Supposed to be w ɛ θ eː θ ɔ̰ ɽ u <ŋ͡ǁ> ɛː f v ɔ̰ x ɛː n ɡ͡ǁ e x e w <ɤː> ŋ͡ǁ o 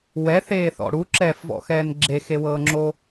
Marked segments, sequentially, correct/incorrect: incorrect: ǁ, correct

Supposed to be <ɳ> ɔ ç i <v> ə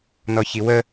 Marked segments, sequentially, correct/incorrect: incorrect: n, incorrect: w

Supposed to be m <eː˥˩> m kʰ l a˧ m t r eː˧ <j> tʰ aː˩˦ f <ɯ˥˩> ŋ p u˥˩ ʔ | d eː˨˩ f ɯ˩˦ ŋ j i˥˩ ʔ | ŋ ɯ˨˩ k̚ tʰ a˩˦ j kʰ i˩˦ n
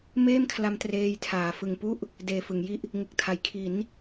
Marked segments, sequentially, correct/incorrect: correct, correct, incorrect: ɯ˨˩

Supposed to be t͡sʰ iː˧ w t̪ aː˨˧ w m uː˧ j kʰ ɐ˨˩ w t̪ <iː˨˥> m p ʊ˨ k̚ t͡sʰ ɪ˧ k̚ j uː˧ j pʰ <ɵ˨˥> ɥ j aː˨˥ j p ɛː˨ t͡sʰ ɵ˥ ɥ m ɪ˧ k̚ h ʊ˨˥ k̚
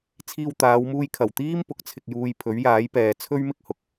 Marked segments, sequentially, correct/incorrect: incorrect: iː˥, correct

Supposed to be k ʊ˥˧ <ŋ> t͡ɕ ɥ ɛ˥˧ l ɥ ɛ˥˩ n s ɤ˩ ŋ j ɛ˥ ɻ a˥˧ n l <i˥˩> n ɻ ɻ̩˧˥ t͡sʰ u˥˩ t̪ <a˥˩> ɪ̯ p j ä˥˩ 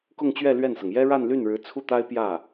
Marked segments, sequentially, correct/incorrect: correct, incorrect: y˥˩, incorrect: a˥

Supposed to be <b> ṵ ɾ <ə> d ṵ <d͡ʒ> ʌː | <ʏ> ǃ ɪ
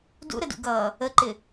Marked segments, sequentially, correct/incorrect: incorrect: d, correct, incorrect: ɡ, incorrect: ə

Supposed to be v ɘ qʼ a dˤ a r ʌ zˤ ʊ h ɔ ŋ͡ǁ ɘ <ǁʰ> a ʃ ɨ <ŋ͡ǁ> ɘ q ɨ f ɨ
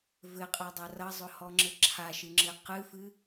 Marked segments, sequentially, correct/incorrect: correct, correct

